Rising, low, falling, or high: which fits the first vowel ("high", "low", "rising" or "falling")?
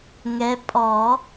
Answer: rising